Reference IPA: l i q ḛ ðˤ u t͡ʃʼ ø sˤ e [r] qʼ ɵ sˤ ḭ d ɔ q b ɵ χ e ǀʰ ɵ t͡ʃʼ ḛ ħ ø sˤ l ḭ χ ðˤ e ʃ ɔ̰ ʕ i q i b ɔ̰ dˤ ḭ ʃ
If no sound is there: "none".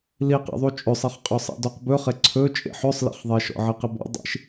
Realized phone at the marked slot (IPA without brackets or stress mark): χ